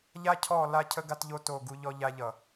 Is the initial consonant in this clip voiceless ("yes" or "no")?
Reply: no